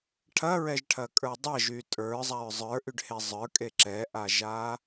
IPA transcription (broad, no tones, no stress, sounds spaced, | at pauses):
ʈʰ ɐ ɹ ɛ ʒ ʈʰ ɐ kʼ ə˞ dˤ ɐ ʒ y tʼ ə˞ zˤ a ɹ zˤ ə˞ ʔ y ɖ h e zˤ ə˞ kʼ e ǁ ɛ ʔ a ʒ a